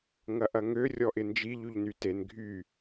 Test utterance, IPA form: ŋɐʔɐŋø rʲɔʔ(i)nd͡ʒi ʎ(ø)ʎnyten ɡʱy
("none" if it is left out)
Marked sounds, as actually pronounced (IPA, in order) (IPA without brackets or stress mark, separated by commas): ɪ, y